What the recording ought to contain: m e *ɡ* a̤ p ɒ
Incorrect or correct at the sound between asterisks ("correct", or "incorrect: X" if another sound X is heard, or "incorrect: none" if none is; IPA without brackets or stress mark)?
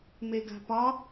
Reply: correct